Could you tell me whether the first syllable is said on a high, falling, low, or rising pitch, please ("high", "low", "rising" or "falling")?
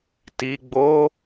low